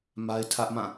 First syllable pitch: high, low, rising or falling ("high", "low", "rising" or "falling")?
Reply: high